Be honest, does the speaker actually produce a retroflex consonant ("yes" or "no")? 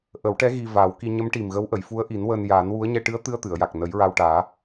yes